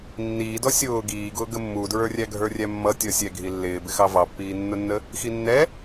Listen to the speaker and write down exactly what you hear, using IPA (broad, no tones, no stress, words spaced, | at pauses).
nːiː dɔsʲʊː ɡiːɡʊː ɡəmːudɹə˞rʲæ ɡʱə˞rʲæmːʌ tʲɔsʲɛɡʱi lːɪːbɪxɑ vɑpːiːnːʊnːə | xinːɛ